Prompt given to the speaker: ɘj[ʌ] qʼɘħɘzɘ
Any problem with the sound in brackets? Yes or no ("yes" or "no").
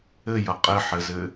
no